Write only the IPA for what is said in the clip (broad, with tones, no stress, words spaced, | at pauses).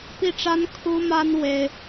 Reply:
pi˥˩ʈ͡ʂa˥n kʰu˥ma˥n we˥ɪ̯